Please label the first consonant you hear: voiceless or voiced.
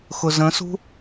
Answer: voiceless